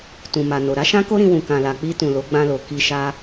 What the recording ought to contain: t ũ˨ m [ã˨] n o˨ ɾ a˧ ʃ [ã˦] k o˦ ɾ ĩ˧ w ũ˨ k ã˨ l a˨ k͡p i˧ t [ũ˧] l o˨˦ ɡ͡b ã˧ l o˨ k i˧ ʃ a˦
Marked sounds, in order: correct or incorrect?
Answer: incorrect: a˨, correct, incorrect: ũ˨

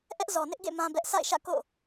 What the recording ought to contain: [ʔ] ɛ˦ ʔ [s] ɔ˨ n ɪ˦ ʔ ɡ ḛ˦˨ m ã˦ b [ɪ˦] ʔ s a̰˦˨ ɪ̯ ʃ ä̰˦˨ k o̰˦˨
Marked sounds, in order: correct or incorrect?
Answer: correct, incorrect: z, incorrect: ɛ˦

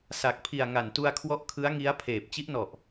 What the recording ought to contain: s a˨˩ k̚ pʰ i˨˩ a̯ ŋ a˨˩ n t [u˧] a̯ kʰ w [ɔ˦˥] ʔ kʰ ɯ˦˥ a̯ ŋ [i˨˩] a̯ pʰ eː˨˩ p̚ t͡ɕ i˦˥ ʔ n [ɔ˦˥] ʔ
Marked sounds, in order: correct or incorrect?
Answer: correct, correct, incorrect: i˦˥, incorrect: ɔ˨˩

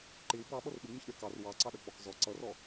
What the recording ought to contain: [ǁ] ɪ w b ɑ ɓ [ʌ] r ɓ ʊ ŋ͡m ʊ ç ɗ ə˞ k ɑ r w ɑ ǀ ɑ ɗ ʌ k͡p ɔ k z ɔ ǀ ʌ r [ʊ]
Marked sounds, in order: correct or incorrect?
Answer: incorrect: ǃ, correct, incorrect: ɔ

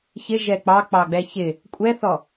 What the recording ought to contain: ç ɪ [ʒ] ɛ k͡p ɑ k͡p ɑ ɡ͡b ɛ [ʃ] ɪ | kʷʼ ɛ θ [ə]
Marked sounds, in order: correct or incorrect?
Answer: correct, incorrect: ç, incorrect: ɔ

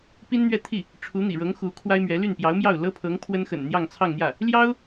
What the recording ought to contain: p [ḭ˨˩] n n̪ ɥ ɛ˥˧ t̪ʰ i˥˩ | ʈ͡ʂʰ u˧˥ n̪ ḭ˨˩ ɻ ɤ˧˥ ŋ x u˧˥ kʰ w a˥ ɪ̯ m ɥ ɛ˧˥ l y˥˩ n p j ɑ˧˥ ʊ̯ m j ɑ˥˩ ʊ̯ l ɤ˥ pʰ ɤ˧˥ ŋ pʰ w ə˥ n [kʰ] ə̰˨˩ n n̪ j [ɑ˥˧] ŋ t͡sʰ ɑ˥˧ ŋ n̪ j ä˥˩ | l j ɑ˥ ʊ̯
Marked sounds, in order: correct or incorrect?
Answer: incorrect: i˥, incorrect: x, correct

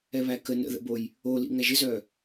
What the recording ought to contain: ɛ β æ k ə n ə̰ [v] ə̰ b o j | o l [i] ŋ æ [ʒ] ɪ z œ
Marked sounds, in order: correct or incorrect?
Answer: incorrect: ð, incorrect: ḭ, correct

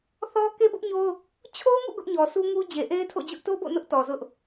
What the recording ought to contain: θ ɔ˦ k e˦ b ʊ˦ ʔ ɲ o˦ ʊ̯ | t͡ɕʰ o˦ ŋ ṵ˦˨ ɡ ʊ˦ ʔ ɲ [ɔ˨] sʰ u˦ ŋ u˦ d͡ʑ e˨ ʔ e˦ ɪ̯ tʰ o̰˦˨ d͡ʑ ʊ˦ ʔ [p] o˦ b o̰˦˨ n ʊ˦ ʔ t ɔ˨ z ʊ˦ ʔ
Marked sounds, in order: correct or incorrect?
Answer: correct, incorrect: t

